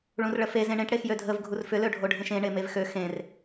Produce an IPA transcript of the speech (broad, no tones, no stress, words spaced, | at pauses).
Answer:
ɭũrɭəfe zẽɳẽʈ ɽexjødʱəv ɡʱurfʏ løɖʱoɖʱẽʃẽ ɳemevxø xẽr